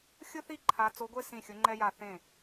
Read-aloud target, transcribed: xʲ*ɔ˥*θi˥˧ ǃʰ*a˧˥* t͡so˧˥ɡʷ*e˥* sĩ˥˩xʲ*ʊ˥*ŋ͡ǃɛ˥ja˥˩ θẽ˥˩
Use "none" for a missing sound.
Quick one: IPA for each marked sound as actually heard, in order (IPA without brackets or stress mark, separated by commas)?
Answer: ʊ˥, a˧˥, e˥, ʊ˧˥